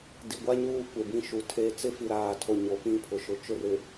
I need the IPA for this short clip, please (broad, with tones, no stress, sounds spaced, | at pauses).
d i˨ ɡʷ a˦ ɲ uː˦ kʷ e˨ b ĩ˦ ʃ u˨ tʰ e˦˨ t͡s ɪ˦ f i˨ ɾ aː˨ tʰ o˨ ɲ o˨ p ĩ˦ pʰ ʊ˨ ʃ ʊ˨ t͡ʃ ʊ˦˨ r ɪ˨